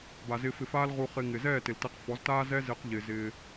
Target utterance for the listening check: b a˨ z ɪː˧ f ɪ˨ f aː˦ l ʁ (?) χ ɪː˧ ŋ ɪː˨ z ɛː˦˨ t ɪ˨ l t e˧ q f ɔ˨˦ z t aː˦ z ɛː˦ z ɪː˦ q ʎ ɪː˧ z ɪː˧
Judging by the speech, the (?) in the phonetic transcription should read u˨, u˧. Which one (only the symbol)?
u˧